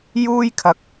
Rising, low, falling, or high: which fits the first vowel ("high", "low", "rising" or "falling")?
high